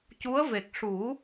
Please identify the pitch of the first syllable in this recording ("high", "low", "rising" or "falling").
rising